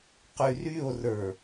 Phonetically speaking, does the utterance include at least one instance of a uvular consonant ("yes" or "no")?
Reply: yes